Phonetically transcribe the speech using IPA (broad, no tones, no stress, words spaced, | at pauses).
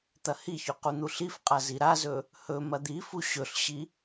t̪ɐhiçɵ qun̪uɬifqʼa ziɾazɵ | hɵ mɐd̪ifu ɕɵɬɕi